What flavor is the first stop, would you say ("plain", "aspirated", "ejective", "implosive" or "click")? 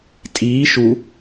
ejective